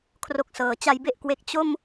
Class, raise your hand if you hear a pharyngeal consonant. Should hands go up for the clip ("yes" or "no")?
no